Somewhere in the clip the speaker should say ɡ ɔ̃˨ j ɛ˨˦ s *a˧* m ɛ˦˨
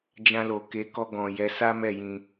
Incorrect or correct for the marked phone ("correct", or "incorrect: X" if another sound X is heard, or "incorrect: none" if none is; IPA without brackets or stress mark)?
incorrect: a˦